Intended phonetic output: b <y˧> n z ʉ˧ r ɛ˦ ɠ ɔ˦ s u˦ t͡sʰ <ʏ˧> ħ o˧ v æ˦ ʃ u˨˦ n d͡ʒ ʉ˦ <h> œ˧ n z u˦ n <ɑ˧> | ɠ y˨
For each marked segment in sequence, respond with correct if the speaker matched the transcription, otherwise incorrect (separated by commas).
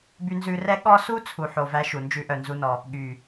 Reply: correct, incorrect, incorrect, incorrect